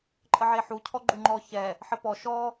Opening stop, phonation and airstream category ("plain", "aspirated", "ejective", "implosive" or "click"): click